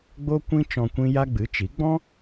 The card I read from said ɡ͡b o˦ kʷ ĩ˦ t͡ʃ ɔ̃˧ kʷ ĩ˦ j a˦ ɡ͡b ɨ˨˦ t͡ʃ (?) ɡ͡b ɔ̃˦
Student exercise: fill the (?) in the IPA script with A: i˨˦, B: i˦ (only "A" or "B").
A